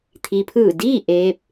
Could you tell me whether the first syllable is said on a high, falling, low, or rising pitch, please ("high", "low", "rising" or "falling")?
low